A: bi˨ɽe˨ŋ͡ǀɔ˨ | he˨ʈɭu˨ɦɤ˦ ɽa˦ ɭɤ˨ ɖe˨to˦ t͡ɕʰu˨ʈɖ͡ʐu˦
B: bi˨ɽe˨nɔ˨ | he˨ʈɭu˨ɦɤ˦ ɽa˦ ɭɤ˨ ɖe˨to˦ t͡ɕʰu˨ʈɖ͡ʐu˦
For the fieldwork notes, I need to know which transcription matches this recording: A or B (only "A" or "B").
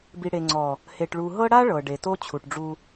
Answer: A